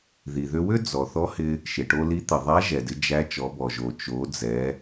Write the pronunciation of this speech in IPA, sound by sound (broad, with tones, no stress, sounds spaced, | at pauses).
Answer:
ð i˩ ð ʏ˧ w ʏ˥ d͡z ɔ˩ θ ɔ˧˥ h ɪ˧ | ʃ ɪ˩ ʈ o˧ l i˧˥ t̪ ɪ˩ ðˤ æ˧˥ ʒ ɛ˩ d ɪ˩˧ d͡ʒ æ˧˥ t͡ʃ ɔ˩˧ b ɔ˩ ʒ o˩ t͡ʃ o˩˧ d͡z ɛ˩˧